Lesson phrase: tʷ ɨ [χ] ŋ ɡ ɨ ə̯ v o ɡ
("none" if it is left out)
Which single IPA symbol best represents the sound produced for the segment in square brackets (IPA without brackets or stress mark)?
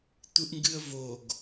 ʔ